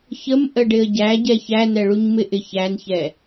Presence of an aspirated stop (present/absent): absent